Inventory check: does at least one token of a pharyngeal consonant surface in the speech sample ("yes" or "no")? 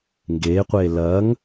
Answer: no